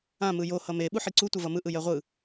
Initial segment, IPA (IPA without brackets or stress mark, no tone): ã